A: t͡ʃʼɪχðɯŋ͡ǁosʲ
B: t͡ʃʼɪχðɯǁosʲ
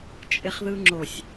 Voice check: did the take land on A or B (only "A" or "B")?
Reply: A